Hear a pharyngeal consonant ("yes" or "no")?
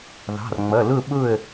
no